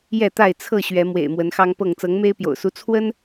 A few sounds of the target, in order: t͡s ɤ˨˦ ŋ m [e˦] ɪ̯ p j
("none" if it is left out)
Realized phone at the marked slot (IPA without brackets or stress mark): e˦